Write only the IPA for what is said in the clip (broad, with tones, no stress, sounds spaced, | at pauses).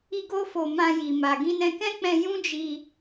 i˧ ɡ o˧ f o˨ m ã˧ j i˨ m a˨ ɡ ĩ˧ n ɛ̃˧ k ɛ̃˦ k͡p ɛ̃˧ j ũ˦ d͡ʒ i˧